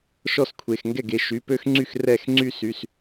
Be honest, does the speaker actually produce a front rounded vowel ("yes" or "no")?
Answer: yes